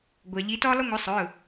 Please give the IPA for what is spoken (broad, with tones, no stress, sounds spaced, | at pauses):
ɡʷ ɑ˩ ʎ i˨˦ t ɔ˥ lˠ ʊ˥ ŋʷ ɪ˨˦ sˤ ʊ˩˧˩